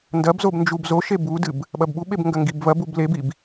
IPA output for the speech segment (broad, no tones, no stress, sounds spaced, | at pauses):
n d ɐ b z o b n d͡ʒ u b z o ʃ e b u d ɨ b | ɓ ɐ b ɓ u ɓ e b ŋ ɡ ɐ ŋ ɡ i b v ɐ b u b l e b i b